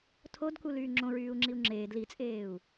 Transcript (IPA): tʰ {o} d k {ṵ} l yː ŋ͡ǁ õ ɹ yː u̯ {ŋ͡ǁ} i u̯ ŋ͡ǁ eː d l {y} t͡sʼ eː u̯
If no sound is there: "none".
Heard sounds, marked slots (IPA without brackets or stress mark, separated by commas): o, u, ŋ͡ǁ, i